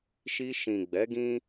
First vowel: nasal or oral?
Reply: oral